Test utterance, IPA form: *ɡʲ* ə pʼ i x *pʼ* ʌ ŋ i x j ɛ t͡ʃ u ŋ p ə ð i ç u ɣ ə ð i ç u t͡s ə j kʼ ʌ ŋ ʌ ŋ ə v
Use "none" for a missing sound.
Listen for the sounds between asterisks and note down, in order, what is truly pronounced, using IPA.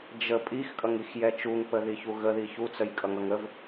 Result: d͡ʒ, kʼ

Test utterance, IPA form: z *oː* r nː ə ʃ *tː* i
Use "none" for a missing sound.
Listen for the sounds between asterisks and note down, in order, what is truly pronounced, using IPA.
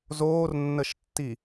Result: oː, tː

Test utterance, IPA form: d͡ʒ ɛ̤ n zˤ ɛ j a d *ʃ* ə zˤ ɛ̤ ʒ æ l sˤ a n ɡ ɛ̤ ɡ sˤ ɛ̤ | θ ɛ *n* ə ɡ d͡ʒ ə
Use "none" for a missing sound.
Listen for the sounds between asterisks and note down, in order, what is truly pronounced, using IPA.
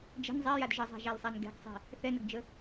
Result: ʒ, n

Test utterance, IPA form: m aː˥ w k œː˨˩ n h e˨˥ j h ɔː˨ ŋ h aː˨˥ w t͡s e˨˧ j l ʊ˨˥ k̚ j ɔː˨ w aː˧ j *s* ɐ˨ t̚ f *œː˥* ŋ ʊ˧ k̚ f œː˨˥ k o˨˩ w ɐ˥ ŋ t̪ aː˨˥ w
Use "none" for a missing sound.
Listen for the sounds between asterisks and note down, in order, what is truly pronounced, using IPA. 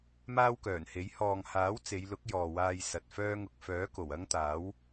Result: s, œː˥

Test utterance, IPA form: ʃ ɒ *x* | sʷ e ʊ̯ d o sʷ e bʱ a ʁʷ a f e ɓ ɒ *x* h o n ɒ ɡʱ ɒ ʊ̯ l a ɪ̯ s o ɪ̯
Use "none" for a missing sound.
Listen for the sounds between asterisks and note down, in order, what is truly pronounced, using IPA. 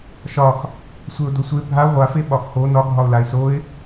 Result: x, x

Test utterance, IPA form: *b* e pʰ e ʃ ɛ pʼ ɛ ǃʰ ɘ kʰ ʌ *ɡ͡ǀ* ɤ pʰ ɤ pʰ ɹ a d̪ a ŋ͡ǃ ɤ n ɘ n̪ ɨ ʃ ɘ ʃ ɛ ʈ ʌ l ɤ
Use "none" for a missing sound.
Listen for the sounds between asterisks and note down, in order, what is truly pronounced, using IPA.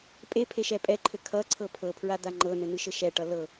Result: pʼ, ǀʰ

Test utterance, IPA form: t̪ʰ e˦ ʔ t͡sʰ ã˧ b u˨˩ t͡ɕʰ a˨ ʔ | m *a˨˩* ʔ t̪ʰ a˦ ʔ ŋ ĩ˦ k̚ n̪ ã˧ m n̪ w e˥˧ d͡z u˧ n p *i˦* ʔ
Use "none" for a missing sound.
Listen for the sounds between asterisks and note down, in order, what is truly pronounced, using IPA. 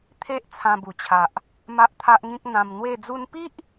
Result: a˦, i˦

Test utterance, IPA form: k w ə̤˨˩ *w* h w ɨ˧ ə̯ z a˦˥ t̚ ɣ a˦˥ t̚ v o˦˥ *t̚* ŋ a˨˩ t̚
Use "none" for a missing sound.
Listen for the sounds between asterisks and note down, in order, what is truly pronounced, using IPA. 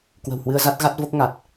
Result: w, k̚

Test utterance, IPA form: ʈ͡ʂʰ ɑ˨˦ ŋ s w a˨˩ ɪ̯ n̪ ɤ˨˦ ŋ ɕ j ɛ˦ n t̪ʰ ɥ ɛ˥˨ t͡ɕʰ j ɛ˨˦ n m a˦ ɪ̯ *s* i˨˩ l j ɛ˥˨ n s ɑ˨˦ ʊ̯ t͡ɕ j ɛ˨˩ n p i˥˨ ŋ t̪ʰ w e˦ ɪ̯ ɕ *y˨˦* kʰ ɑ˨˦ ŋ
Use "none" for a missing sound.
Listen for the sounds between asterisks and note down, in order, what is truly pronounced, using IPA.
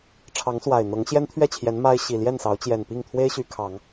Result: ɕ, y˨˦

